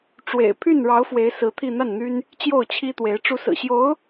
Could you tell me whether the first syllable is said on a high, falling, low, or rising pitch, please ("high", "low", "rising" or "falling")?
low